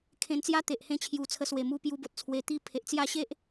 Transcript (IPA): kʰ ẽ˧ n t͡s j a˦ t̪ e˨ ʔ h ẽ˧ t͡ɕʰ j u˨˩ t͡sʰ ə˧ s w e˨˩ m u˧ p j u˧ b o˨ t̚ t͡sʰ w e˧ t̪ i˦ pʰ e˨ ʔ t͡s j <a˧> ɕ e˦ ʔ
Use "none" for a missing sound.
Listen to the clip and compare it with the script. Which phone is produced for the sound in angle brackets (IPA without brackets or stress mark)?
a˥˧